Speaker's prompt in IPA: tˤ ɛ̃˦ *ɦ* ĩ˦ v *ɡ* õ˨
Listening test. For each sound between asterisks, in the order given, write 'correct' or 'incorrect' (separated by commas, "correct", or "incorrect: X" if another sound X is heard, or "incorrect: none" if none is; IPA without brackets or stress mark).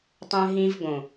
correct, correct